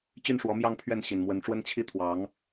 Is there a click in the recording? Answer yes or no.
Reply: no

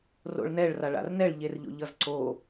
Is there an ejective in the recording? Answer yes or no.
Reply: no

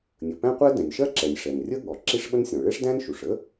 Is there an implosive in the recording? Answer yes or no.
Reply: yes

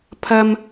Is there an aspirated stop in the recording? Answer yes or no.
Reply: yes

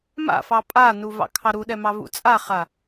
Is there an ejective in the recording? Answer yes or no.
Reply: yes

